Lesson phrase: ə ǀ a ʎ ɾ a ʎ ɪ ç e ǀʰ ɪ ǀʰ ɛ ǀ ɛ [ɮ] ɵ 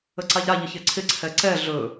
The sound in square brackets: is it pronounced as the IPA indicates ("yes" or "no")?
yes